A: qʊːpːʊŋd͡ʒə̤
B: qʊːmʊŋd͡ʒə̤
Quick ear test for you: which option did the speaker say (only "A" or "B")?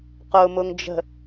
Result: B